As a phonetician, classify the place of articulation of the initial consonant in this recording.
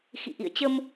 velar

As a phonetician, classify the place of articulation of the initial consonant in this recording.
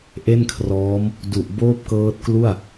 glottal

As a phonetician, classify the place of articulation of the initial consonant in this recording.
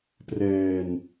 labial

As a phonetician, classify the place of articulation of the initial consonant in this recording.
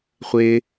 uvular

